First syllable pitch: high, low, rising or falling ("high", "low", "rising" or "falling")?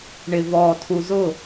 low